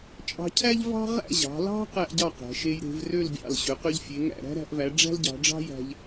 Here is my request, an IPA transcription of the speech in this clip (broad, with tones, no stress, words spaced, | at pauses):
t͡ʃʼɑ̤˧cʰæ˥ʎ vɑ̤˥ʁæ̰˥˧ʑɑ̤˩˧ lɑ̤˥ qæ˥ʔɟɑ˥˧ qæ̤˩˧ ʃe˧jɾe̤˩˧vrø˥˧lbʲɑ̰˧˩l ɕø˩˧qø˧ʎfʲe˩˧ ŋæ̰˧˩ɾæ̤˥ɾæ̤˩˧ʔvæ˩˧ ɖ͡ʐæ̤˥lɟɑ̤˩˧ɖ͡ʐɑ̤˥jæ̤˧ʎ